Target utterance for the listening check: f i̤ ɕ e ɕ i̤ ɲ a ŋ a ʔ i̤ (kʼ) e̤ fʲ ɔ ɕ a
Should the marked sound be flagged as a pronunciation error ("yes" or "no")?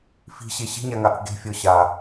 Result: yes